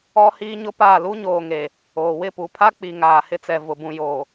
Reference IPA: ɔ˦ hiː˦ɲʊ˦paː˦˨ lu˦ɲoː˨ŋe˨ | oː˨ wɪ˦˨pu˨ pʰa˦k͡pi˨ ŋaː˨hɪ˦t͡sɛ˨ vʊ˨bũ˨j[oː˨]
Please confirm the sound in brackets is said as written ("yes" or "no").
yes